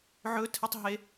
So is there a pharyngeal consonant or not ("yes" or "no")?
yes